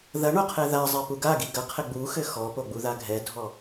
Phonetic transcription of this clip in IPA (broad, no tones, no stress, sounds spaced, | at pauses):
ð ɐ ɳ o qʰ ɛ ð a zˤ e p u ɡ a ɡ i ɡ ɐ qʰ ɘ ɡ͡b u x ɘ x ɔ p o ɡ͡b u ð a ɡʱ ɛ dʱ ɔ